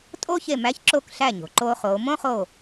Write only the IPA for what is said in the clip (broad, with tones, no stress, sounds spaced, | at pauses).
tʼ oː˦ ç e˧˩ m æ˨˦ ç ǁ o˥˩ k ɬ æ˥˩ ɲ o̤˩ ǃ oː˦ χ oː˨˦ m õ˦ χ o˧˩